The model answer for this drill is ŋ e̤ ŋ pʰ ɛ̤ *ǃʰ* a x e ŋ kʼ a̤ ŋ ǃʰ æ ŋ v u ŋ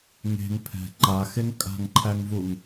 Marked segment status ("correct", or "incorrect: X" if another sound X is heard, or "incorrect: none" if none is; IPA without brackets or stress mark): incorrect: ǃ